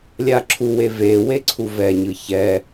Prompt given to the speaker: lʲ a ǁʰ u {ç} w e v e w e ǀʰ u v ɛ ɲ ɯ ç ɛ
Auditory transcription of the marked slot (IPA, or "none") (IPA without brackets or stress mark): none